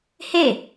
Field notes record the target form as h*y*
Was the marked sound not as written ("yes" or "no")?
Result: yes